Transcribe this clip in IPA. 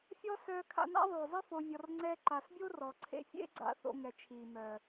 fʲɔ˦sœː˧ kʰa̰˧na̰˦ðˤøː˨zˤi˦ fo˧vʲɔ˧r ŋ͡ǀɛː˧ǃaː˨sbʲoː˦ rɔ˨ǀʰḛ˦ fʲḛ˦ɡ͡ǀa̰˨ θo̰˧ŋɛ˨ t͡ʃʰiː˨mœː˨

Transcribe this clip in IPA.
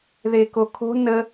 ðekokʰo̤ nə

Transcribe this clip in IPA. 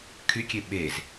kʰykʲe ɓez

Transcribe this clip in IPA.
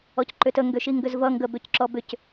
ɔcǃʏtə ŋɡøʃiŋɡʏzvʌ ŋɡəbøcǁɔbʏc

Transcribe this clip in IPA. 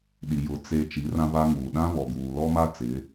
ɗi˨jʊ˨ t͡se˨ t͡ʃi˨˦rã˦va˦ŋuː˨ ɗã˦βɔ˨ɡuː˨ lɔ˦ma˦ t͡sɪ˨˦

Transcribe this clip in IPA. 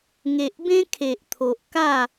ŋe˨ʔbẽ˦kʰe˨ʔt̪ʰo˨ʔ ka˥˧

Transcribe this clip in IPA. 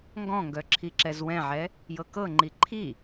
ŋɡɔ̃ŋɡœ ǁʰiǁɛzwɛ̃ʕɛ | jɤkɤŋ͡ǃi ǃʰi

